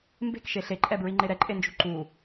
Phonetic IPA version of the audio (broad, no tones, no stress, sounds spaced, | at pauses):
m b e̤ k ʃ e ɬ e ǃʼ ɛ b ɹ i ŋ͡ǃ e ɾ ɛ ǃʼ e n d͡ʒ ṳ ǃ u